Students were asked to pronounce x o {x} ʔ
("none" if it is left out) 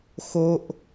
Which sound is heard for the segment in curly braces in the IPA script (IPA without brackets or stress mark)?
none